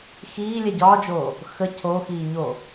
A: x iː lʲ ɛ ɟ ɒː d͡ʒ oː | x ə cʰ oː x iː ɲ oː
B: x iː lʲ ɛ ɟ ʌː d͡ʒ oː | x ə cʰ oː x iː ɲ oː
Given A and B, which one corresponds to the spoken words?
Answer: A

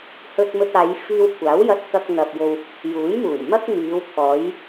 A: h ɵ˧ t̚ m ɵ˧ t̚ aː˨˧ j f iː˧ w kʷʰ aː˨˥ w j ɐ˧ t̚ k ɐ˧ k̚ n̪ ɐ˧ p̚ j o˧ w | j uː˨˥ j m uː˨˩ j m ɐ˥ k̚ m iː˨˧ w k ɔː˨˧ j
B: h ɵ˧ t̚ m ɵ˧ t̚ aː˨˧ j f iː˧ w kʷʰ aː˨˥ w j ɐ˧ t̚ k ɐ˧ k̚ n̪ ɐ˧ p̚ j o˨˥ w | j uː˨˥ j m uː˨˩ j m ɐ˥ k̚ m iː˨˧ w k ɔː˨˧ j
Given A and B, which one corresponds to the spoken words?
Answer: A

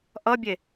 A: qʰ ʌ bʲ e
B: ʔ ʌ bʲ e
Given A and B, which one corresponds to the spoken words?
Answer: B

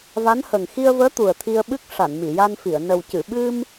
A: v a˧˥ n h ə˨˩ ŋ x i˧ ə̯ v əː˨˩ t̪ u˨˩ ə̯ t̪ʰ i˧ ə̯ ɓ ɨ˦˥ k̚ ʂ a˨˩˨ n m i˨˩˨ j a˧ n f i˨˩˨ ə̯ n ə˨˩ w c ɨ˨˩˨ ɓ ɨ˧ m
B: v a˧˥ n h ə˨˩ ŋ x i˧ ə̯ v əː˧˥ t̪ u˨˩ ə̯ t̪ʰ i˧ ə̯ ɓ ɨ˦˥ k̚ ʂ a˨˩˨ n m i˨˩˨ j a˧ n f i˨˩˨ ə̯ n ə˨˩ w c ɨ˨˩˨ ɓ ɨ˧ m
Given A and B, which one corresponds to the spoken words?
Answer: B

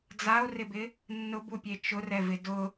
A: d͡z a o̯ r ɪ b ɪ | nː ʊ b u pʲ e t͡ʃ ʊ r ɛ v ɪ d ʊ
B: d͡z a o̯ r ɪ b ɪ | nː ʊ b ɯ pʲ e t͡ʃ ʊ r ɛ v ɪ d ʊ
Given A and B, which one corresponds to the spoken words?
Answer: A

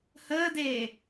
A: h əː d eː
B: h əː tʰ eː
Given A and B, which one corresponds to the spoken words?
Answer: A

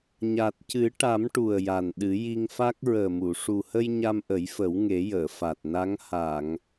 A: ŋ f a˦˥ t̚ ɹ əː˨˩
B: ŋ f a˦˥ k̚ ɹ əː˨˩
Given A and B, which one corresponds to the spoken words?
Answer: B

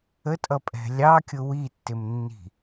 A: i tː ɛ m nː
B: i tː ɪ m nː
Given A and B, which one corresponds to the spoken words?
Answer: B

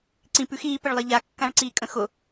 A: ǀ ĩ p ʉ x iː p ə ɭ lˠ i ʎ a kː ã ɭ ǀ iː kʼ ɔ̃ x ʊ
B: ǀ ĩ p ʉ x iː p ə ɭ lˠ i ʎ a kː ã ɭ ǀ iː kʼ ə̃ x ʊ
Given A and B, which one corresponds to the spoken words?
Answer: B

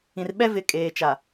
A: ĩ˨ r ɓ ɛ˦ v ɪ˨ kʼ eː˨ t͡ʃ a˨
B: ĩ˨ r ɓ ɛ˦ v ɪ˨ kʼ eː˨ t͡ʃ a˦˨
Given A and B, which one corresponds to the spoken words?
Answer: A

